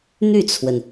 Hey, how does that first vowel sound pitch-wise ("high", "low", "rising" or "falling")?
falling